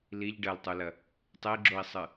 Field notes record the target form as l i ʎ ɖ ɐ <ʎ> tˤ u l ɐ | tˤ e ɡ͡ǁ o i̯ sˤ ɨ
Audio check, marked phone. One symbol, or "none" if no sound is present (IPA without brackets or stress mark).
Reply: l